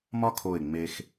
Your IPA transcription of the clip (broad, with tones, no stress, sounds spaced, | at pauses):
m ɒ˥ kʰ o˧˩ ɪ̯ ŋ͡m e˧ x